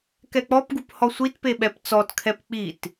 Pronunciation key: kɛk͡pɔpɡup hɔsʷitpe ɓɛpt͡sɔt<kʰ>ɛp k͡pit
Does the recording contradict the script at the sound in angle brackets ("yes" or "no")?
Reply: no